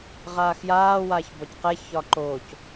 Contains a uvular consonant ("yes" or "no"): yes